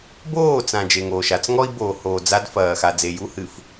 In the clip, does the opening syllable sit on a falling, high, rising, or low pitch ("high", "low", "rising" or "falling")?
falling